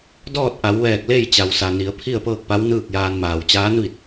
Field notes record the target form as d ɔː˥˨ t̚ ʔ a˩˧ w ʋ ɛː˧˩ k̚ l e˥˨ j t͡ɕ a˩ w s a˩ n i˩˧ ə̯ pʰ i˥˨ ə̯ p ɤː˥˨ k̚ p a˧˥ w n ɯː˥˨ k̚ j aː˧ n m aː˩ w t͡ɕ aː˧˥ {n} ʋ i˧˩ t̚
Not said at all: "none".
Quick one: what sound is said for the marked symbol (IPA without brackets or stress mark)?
n